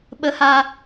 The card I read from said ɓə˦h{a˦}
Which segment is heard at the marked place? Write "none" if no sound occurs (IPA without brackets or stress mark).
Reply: a˦